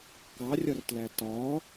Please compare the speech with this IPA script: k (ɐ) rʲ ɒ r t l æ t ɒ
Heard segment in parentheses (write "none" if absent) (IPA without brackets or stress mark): ɑ